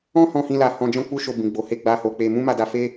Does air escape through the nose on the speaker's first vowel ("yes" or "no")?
yes